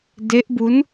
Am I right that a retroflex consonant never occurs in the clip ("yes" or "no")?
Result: yes